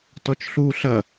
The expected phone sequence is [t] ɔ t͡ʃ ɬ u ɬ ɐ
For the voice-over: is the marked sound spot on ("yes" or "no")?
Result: yes